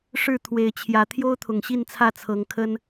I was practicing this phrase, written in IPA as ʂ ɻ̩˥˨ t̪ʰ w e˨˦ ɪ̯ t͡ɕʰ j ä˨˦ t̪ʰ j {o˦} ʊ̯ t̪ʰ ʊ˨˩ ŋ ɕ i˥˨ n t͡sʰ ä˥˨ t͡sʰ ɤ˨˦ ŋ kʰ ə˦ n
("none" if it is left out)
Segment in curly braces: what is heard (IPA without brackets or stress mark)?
o˦